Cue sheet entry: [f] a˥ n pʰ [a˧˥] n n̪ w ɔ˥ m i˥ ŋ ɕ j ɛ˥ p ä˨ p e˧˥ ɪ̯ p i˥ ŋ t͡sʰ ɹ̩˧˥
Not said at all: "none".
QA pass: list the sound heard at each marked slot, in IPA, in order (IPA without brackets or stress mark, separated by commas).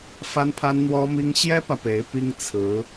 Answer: f, a˥